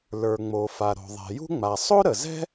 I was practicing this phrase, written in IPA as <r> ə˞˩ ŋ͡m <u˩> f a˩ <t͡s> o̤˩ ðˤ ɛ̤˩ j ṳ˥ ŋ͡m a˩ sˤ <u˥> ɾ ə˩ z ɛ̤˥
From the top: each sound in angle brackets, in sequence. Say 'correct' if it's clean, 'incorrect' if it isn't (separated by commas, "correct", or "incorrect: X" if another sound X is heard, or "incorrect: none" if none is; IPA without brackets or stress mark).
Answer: incorrect: l, incorrect: o˩, incorrect: ɾ, incorrect: o˥